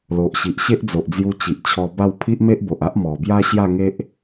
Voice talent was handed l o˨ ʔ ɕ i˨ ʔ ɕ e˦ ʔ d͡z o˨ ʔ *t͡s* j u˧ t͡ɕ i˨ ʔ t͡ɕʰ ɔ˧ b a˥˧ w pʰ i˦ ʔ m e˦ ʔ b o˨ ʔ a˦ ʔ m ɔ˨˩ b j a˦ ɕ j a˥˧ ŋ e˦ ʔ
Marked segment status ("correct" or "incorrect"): incorrect